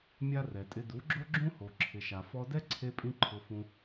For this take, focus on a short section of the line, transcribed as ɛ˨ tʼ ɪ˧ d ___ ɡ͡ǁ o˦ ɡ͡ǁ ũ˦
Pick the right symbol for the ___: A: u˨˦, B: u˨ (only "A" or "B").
A